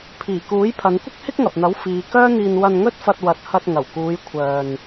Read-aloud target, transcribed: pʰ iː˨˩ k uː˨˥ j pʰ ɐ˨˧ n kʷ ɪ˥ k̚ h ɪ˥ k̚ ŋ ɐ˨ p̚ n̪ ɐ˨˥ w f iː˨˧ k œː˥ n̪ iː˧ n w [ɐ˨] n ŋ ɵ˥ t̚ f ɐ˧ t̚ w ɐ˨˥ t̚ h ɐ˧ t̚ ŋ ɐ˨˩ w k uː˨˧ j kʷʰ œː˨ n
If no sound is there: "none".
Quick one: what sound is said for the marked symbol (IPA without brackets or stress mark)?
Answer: ɐ˧